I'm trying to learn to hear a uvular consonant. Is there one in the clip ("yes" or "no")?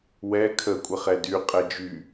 yes